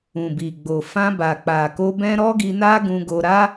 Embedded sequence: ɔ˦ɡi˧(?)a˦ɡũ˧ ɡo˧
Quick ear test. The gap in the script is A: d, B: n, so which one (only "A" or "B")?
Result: B